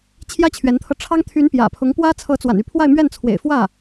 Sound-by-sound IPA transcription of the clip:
t͡ɕʰjä˥t͡ɕʰɥɛ˧˥nt̪ʰɤ˧ʈ͡ʂʰɑ˥ŋ t̪ʰy˧˥n pjä̰˨˩pʰʊ˧˥ŋpwä˥ t͡sʰɤ˧˥t͡swa̰˨˩ny˥˧ pʰwa˥˧ɪ̯mɥɛ˥˩nt͡sʰwḛ˨˩ɪ̯ fwä˥˩

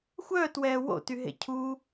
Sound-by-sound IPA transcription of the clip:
xʷœːtwɛː wo̰tyɦḛ cʰu

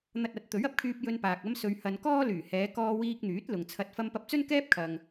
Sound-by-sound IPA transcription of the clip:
n̪ɐ˧t̚ɐ˨˥t̚ t̪ɵ˨˥ɥɐ˨p̚kʰyː˧p̚ jɵ˧npaː˨k̚ ɐ˧msɵ˨ɥhɐ˨n kɔː˥lyː˨˩hɛː˨˧ kɔː˧wiː˧k̚n̪yː˨˥t̚ lʊ˨ŋt͡sʰɐ˧t̚ fɐ˧mpɐ˧p̚t͡sɵ˥n kɛː˥p̚kʰɐ˨ŋ

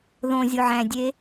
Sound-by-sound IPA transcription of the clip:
ðõ zʲoʕæ̃dʲe

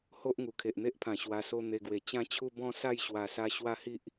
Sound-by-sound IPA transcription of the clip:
ho˦ʔŋu˨˩ kʰe˨ʔn̪e˦ʔpʰã˨˩ ɕwa˧so˦ n̪e˧ɡwe˨˩ t͡ɕã˦t͡ɕʰu˦bɔ̃˦sa˥˧j ɕwa˧sa˦ ɕwa˦hi˦ʔ

